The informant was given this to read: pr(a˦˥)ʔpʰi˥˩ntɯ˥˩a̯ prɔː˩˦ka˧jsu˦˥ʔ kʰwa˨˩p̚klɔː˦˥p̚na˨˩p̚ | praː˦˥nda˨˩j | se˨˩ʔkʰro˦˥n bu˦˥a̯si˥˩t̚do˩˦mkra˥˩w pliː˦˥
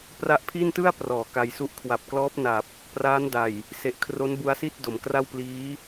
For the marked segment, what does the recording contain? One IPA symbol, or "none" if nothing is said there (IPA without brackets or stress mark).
a˦˥